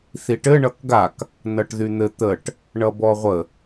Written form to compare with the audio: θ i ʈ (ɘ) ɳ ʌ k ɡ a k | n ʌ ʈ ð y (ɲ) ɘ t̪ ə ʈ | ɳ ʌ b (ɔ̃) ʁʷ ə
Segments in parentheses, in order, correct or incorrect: correct, incorrect: n̪, incorrect: ɔ

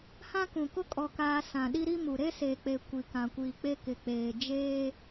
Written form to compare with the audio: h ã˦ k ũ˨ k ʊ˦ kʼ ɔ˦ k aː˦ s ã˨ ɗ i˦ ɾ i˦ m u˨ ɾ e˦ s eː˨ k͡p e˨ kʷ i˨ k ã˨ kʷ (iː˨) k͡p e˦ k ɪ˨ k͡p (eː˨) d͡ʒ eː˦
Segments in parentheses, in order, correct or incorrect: correct, correct

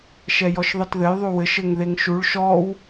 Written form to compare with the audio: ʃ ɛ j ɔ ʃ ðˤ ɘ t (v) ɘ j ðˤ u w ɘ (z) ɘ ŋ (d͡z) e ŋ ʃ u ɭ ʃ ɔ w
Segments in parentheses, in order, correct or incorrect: incorrect: ð, incorrect: ʃ, incorrect: ð

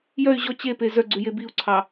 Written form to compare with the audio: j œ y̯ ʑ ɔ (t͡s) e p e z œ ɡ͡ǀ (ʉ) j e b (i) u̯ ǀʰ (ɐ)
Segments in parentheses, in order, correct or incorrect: incorrect: t͡ɕ, correct, correct, incorrect: ɑ

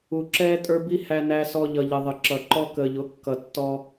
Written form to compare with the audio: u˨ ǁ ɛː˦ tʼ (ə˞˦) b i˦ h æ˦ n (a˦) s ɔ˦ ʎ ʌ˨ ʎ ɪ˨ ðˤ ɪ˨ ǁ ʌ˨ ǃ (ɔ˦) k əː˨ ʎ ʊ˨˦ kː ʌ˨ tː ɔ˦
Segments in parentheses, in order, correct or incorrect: correct, incorrect: æ˦, correct

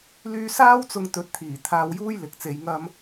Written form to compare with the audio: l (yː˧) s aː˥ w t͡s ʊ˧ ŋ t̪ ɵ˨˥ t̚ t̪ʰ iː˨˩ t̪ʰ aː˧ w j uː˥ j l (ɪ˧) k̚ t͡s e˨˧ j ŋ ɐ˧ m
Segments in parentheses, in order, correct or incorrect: correct, incorrect: ɪ˨

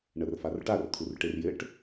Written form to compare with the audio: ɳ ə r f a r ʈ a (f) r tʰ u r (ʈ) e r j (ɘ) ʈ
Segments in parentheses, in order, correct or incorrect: incorrect: none, correct, correct

